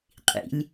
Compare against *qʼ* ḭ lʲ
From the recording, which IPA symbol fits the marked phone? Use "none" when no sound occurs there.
qʼ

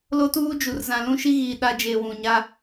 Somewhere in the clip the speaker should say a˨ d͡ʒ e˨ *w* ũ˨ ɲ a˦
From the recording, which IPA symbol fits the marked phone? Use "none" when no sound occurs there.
w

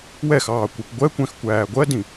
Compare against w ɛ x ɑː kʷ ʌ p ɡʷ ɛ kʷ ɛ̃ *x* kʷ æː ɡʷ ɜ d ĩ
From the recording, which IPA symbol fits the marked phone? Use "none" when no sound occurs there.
x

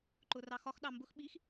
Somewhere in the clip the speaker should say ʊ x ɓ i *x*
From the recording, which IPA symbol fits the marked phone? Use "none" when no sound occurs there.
x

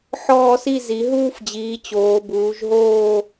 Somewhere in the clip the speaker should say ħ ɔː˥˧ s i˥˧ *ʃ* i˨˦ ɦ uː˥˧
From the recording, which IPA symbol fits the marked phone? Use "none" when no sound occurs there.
z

